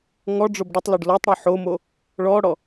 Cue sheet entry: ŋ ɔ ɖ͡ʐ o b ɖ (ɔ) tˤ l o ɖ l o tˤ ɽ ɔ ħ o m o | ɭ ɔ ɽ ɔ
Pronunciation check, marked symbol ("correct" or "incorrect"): incorrect